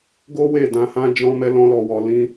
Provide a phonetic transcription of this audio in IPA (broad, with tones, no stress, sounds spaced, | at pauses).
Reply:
ɡ o˦ w e˦˨ d ã˧ h ã˦ d͡ʒ ɔ̃˦ m ɛ˦ l ɔ̃˦ l ɔ˧ w ɔ˧ l ĩ˦